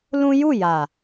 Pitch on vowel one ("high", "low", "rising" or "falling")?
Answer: high